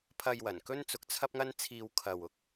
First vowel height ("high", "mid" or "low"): low